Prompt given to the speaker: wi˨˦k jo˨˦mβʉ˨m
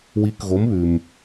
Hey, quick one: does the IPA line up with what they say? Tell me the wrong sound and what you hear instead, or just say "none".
j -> ɣ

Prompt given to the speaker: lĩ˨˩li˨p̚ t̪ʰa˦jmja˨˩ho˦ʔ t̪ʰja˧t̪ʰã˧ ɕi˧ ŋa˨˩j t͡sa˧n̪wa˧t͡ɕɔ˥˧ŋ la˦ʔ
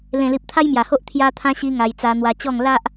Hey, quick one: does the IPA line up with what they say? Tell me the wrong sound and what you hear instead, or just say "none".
ĩ˨˩ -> ẽ˨˩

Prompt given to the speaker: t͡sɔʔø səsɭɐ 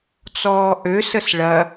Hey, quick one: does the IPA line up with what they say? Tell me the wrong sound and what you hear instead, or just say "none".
ɔ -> ɔː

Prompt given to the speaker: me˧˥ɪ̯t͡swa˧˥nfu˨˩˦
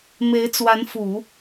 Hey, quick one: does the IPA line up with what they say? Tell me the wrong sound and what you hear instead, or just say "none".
none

